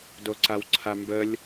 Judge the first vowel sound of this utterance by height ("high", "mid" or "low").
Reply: mid